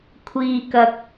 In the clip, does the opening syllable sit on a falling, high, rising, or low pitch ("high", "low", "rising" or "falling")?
low